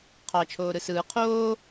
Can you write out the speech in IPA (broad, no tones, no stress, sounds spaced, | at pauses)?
qʰ ɑ t͡ʃʰ oː ɾ ɯ s ɯː qʰ oː